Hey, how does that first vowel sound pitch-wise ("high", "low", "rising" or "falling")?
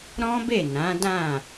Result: high